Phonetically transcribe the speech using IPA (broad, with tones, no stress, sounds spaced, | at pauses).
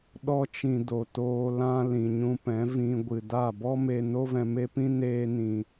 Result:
ɗ ɔ˧ t͡ʃ ĩ˨ d o˨ t oː˧ l ã˧ l ĩ˨ ɲ ũ˧ p ɛ̃˨˦ v ĩ˧ ɡʷ ɨ˨ d a˦˨ b ɔ˦ m e˧ n o˦ v ɛ̃˧ m e˦ p ĩ˦ n eː˦ n ĩ˧